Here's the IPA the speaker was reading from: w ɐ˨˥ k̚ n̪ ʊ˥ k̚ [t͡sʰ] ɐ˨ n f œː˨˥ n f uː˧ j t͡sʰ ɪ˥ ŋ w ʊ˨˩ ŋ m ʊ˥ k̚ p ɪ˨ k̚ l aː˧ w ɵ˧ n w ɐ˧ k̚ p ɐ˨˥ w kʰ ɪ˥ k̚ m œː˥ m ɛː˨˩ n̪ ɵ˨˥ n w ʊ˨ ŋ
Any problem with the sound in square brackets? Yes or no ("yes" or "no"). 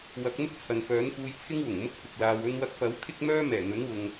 no